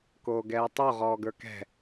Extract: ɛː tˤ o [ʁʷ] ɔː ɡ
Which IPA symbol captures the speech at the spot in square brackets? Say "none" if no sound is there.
ʁ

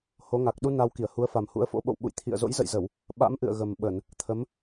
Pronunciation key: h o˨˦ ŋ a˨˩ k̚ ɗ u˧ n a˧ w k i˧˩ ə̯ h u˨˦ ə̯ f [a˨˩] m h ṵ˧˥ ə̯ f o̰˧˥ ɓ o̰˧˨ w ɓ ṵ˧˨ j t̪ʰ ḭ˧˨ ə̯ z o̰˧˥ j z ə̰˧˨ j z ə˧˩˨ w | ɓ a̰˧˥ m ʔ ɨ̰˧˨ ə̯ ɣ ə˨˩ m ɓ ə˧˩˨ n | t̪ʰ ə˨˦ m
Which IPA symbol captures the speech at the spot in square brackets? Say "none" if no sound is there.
a˨˩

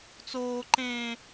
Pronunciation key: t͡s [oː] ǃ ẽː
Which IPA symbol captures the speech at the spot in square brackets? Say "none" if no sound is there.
oː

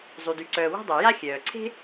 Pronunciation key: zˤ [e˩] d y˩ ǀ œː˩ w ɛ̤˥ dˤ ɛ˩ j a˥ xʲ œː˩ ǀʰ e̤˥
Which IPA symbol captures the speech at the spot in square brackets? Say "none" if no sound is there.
y˩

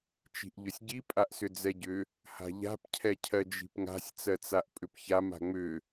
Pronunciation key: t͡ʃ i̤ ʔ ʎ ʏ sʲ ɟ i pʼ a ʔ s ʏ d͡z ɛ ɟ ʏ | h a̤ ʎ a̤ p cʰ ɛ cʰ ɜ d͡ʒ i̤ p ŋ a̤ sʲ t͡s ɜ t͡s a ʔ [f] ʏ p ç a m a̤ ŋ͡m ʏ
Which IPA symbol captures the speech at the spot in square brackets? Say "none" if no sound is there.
pʼ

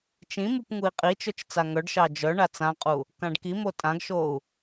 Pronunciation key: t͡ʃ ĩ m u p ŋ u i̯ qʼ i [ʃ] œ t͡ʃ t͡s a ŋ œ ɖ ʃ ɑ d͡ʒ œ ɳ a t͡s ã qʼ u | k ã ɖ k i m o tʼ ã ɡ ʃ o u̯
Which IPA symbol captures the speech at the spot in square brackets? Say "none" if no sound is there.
t͡ʃ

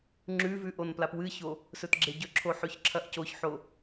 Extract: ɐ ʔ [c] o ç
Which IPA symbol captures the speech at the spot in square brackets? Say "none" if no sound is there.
c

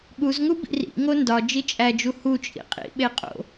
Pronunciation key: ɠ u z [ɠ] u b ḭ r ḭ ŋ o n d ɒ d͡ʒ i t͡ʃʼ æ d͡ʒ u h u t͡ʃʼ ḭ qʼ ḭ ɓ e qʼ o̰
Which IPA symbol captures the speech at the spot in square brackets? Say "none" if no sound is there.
ŋ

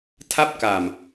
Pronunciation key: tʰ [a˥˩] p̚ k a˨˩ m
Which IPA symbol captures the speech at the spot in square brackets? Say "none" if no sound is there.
a˥˩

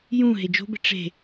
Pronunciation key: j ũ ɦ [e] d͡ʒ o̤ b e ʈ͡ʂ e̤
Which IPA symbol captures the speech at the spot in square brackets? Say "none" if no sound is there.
e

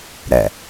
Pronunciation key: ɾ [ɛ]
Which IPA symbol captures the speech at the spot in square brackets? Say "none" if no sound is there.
ɛ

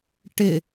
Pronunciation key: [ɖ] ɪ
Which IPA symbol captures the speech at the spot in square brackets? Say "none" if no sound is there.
ʈ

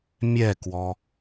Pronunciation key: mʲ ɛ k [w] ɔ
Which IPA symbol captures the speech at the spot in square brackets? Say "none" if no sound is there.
w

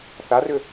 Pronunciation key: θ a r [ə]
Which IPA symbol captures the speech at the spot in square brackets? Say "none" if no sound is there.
ʏ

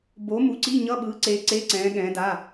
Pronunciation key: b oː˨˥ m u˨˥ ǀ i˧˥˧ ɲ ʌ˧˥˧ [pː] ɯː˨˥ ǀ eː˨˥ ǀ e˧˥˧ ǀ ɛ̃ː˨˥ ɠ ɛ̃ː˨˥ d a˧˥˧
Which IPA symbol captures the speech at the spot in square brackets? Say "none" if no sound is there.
ɓ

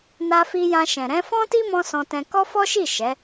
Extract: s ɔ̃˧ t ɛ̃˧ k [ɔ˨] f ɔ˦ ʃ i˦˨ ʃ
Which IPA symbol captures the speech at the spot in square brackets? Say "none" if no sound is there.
ɔ˦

